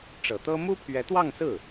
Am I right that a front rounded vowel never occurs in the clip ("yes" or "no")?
yes